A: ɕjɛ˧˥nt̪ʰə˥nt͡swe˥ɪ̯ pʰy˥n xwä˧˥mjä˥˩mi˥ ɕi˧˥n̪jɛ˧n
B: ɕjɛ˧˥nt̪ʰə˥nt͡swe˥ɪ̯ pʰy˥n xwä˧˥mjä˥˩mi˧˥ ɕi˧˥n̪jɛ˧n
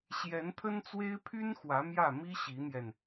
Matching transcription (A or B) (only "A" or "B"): A